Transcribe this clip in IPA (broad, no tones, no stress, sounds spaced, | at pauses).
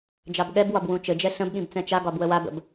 d͡ʒ ɑ b ɠ ɛ b w ɒ b w ũ t͡ʃ ɘ d͡ʒ ɛ ɬ ə̃ b ɠ ĩ b t͡s ɛ̃ t͡ʃ a ɡ ɒ b w ə w a b ə̰ b